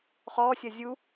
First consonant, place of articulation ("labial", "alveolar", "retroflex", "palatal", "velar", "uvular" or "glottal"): uvular